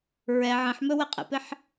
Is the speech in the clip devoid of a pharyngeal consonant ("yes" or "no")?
no